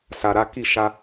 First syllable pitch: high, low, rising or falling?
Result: low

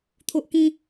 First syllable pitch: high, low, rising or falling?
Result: high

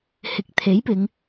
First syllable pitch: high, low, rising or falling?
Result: rising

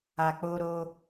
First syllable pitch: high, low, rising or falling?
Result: low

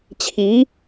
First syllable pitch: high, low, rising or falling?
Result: rising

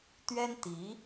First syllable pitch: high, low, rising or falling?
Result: high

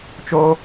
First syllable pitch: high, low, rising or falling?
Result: high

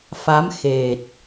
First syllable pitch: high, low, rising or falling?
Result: rising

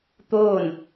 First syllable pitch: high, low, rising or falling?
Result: falling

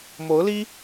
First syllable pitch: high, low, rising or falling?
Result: rising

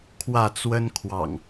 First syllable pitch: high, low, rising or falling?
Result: falling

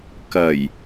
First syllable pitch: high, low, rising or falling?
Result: low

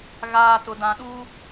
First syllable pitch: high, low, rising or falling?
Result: low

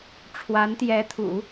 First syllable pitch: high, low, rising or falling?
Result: rising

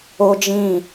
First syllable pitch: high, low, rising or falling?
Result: high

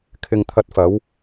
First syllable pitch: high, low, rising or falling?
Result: low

